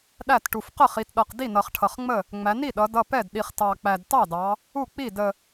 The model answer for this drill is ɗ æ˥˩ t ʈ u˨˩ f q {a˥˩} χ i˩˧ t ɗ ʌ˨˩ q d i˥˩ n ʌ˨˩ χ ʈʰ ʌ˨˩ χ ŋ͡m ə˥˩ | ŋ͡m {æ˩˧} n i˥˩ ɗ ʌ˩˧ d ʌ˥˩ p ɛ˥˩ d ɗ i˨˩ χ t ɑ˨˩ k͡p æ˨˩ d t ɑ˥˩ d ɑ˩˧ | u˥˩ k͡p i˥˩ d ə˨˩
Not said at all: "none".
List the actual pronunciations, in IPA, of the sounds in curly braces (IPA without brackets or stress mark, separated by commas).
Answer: ə˥˩, æ˩˧